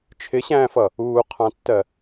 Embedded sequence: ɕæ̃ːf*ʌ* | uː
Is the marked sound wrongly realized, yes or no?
no